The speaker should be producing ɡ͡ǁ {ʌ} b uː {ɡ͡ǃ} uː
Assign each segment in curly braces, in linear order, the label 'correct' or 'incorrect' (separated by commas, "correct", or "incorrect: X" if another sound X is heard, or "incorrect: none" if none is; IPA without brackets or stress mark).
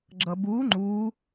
correct, incorrect: ŋ͡ǃ